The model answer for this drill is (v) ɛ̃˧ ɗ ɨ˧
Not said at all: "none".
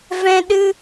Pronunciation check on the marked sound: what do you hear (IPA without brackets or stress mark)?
v